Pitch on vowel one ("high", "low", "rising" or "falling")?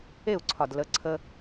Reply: falling